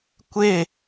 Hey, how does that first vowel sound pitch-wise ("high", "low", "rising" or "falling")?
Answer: falling